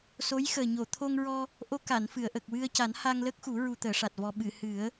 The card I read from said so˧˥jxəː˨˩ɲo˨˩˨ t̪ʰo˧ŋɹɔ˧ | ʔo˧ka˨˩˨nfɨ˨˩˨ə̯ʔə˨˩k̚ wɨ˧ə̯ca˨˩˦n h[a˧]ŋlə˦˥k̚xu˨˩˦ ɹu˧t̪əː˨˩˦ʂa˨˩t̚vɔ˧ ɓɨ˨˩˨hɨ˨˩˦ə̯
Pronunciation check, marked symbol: correct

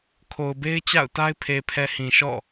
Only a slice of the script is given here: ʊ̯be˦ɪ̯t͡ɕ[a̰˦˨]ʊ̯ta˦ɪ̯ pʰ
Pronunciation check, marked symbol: correct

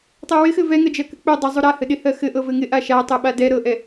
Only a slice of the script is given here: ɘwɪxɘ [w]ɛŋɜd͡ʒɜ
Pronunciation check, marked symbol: incorrect: v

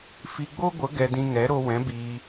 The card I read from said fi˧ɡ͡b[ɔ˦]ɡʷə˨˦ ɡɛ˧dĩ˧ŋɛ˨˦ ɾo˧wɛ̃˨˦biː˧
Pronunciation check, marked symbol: incorrect: o˦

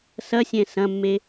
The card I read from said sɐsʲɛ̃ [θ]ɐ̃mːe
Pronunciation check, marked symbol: incorrect: s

